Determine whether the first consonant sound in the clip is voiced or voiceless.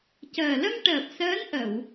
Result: voiceless